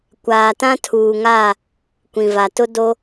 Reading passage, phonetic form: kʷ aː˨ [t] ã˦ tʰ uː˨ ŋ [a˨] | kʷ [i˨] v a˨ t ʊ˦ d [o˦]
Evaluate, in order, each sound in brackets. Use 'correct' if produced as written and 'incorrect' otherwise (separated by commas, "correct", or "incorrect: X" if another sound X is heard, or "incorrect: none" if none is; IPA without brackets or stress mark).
correct, incorrect: a˦˨, incorrect: ĩ˨, correct